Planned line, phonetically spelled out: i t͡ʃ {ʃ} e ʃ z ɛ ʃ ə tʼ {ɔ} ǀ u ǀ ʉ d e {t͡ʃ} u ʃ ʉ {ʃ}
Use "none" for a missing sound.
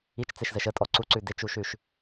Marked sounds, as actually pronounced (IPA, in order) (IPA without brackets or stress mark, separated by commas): t͡s, ɔ, t͡ʃ, ʃ